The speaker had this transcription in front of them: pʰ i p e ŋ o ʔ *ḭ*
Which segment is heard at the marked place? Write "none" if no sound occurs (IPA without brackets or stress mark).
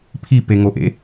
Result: ḛ